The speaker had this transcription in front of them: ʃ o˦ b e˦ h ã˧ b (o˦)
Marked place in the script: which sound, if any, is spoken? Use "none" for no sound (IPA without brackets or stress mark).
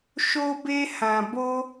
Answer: o˦